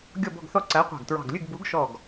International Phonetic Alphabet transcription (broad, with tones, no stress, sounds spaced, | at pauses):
ɡʲ ɔ˥˨ b ɔ̤˥˨ ɡ θ ɔ˥˨ ǀ æ˨˥ qʷ ɑ̤˧˩ ɡ t ɹ ɑ̤˧˩ ɡ lʲ ʉ˥˨ ɡ b u˨˥ ɡ ʃ ɔ˧˩ ɡ